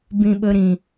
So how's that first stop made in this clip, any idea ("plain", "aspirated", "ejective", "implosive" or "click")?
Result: plain